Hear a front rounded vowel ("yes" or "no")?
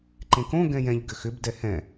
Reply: yes